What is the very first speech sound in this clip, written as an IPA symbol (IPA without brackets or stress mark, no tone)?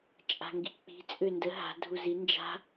t͡ʃʼ